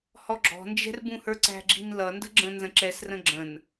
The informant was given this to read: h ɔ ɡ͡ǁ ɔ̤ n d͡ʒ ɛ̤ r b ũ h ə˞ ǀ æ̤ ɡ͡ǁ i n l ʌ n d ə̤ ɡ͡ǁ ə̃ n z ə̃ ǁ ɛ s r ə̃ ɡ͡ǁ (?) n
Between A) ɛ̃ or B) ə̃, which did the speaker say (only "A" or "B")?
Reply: B